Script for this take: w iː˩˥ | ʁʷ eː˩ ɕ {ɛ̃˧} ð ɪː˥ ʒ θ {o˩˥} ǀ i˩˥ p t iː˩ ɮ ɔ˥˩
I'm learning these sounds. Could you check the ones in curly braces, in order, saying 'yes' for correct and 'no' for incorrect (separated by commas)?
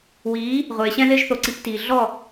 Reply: yes, yes